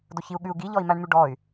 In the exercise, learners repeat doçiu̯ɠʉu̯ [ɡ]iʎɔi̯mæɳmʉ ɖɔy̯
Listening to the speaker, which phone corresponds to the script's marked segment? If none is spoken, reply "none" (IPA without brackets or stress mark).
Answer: ɡ